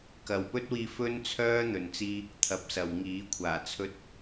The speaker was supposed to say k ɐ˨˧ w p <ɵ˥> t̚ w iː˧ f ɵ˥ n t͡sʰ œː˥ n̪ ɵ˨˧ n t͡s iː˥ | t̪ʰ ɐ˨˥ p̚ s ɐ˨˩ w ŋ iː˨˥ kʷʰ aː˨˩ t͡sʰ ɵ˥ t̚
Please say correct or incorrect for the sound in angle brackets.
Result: correct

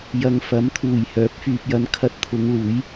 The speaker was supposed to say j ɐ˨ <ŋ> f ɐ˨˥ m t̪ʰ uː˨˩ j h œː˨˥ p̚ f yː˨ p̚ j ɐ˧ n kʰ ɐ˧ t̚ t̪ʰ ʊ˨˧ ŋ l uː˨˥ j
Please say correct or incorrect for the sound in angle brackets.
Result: correct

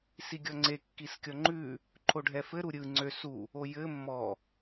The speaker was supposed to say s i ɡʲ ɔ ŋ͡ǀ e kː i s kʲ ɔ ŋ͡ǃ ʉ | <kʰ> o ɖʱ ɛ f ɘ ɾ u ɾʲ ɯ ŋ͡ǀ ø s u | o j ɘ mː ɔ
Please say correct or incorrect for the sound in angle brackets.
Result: incorrect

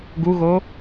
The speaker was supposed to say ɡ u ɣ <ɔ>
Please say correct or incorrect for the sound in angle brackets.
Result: incorrect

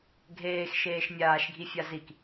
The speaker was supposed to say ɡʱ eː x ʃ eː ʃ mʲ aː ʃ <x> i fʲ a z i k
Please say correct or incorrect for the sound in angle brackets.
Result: incorrect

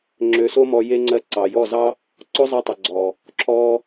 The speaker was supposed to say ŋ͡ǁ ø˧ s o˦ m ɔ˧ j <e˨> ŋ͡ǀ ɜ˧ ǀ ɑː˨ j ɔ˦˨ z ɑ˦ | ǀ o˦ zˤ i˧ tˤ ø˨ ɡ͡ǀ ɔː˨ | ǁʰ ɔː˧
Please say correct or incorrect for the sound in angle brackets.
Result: incorrect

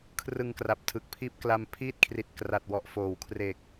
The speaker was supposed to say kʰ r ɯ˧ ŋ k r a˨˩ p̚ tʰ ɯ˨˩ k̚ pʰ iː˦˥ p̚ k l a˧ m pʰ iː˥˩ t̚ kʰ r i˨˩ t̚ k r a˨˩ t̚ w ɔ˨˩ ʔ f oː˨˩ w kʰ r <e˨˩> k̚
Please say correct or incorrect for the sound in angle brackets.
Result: correct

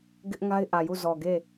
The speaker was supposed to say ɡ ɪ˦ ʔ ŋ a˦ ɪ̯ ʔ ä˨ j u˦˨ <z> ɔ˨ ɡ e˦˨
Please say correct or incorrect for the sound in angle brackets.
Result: correct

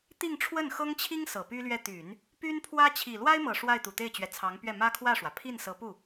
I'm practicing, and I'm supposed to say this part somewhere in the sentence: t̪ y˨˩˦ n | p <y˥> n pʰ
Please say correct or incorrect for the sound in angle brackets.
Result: correct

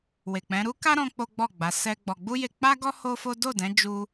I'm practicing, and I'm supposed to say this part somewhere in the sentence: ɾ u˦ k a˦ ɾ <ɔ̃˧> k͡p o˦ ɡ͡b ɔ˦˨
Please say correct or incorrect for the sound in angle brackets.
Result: correct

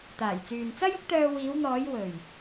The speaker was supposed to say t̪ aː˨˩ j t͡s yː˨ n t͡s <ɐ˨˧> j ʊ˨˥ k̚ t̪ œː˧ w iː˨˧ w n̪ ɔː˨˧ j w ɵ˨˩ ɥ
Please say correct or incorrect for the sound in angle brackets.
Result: incorrect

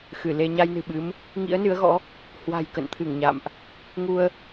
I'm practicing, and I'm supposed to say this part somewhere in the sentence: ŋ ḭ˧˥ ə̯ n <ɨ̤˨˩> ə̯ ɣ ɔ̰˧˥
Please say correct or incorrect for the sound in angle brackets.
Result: incorrect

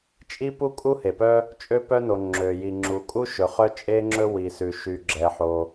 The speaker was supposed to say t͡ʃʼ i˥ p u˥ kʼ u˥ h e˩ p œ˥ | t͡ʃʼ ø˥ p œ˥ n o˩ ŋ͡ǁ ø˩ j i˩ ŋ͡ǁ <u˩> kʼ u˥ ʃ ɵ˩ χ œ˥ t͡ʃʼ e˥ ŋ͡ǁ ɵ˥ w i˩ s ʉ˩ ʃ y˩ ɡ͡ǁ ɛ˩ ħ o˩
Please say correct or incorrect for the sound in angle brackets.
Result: correct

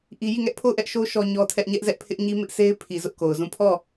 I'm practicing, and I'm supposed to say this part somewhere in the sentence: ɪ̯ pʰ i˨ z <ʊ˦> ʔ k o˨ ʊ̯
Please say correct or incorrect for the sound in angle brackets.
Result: correct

